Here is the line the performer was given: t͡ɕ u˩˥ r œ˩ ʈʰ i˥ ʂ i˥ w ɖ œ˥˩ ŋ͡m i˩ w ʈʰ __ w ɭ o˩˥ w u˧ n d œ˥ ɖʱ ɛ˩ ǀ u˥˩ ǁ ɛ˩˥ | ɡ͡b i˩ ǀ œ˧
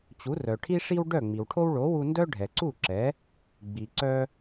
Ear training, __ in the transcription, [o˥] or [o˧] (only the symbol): o˥